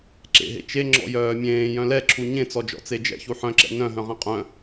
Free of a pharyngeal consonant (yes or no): no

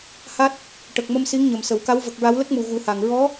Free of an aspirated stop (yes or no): yes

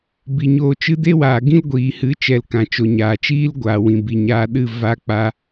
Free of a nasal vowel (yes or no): no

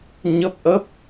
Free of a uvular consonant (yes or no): yes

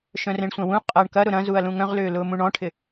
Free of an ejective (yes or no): no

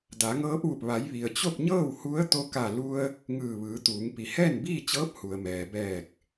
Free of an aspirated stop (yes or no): yes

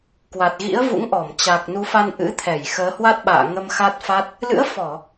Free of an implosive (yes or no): no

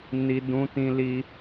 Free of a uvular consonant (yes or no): yes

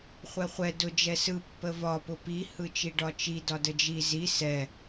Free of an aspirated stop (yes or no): yes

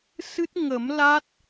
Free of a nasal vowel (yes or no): yes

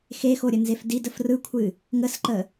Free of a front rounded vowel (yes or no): yes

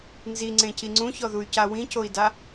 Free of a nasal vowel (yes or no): no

